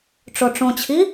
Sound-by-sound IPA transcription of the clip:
ʈ͡ʂoʈ͡ʂõt͡ɕʰi

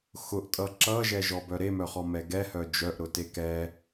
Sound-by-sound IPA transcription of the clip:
xʊʔtʼʌ ǁʌʒɛʒɔbœ ɾemœχɔmɛ ɡɛhœ d͡ʒœʔɾʊte kɛ

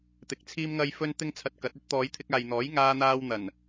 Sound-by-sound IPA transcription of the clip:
t̪ɪ˨k̚t͡sʰiː˥mŋɐ˥j fɵ˥nt̪ɪ˥ŋt͡sʰɐ˧t̚ kɐ˨˥t̚ɵ˥t̚ t̪ɔː˨˧jt̪ʰɪ˧k̚aː˨jn̪ɔː˨˥j ŋaː˥n̪aː˥w n̪ɐ˨˩n

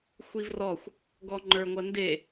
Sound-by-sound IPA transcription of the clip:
xʷivrɔxʷ | ɡɔŋ͡ǃə˞ŋʷɐnde

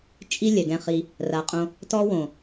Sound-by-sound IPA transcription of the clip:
t͡ʃʼi˦ lʲɛ˨ɡɛ̃˧χi˧ | ra˧qʼõ˦ | tɔ˦ wõ˨

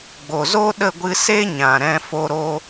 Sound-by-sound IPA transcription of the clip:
ɡ͡bo˨zo˦ ɗə˦˨ɡʷɨ˧ se˦ ɲã˨ ɾɛ̃˧fo˧ɾo˧

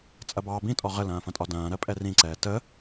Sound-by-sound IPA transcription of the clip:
t͡sʼɐbɑːbĩtʼɔ ʁəlɐ̃ːfɐ̃tʼɒ dɐ̃ːɾɜ pʼɛrĩǀɛː tə

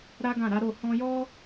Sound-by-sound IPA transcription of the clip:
ɾa˦ɡã˦˨ɾa˨˦ ɾo˦˨ hɔ̃˧jɔ˦

